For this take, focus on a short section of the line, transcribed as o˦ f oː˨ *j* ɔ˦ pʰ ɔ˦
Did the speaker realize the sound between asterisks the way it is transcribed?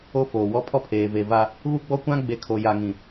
no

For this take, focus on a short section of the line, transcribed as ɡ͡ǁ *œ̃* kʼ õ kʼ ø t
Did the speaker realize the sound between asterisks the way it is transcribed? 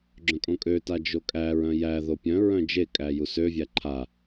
yes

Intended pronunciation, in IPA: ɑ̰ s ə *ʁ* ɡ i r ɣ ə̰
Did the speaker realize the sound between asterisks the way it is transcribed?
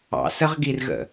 yes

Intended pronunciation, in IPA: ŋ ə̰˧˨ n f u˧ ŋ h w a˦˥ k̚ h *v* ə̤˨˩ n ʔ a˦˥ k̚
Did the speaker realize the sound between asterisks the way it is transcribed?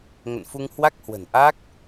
no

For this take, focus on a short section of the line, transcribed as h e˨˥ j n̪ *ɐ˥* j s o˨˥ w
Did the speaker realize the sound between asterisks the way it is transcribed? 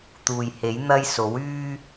yes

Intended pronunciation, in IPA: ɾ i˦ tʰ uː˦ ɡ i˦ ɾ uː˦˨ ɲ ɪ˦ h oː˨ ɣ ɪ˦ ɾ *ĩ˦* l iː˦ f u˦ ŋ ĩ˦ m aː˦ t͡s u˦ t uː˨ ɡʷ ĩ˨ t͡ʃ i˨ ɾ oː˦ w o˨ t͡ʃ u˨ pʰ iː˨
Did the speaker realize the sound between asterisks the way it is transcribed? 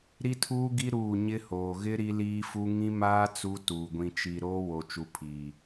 no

